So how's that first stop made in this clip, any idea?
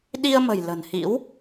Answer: implosive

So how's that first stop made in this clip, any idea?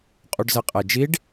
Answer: ejective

